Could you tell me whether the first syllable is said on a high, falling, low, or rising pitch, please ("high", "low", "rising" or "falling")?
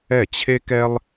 falling